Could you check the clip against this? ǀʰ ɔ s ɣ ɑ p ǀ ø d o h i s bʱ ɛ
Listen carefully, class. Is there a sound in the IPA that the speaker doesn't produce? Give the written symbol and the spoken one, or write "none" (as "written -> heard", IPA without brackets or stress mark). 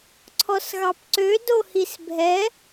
none